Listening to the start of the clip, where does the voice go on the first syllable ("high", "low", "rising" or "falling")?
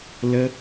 high